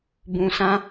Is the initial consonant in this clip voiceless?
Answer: no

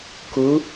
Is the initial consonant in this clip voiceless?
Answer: yes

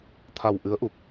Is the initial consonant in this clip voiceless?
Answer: yes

